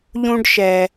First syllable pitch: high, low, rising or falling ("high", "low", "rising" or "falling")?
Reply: high